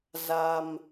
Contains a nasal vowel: no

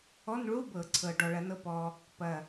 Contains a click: yes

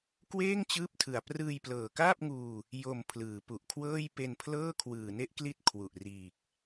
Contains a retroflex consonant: no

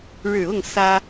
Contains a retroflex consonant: yes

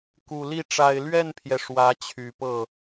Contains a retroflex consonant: yes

